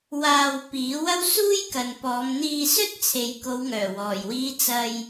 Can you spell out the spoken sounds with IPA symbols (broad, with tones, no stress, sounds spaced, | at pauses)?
w aː˧ w p iː˨˥ w ɐ˥ w s uː˥ j k ɐ˨ n p ɔː˨˧ m n̪ iː˧ s ɵ˥ t̚ t͡sʰ e˨ j k o˨˧ w ŋ œː˨˩ w ɔː˨˩ j w iː˨˧ t͡s ɐ˧ j